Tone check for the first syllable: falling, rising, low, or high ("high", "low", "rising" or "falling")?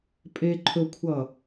high